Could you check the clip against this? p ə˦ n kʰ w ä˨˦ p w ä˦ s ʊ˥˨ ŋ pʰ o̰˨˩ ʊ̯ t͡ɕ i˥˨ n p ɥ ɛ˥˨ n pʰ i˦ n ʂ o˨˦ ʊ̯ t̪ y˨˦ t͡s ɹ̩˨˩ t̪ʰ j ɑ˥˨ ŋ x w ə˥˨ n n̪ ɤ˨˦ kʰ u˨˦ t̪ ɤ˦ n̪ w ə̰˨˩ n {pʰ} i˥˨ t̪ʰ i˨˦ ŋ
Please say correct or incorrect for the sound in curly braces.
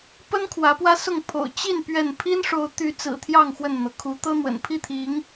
correct